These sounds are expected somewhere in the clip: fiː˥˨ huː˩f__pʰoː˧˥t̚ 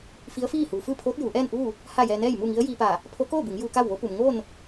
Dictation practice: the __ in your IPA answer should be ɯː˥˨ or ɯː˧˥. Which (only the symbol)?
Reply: ɯː˥˨